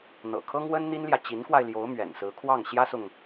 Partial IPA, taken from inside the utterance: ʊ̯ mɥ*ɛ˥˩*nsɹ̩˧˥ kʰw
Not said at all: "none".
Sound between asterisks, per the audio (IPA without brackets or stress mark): ɛ̰˨˩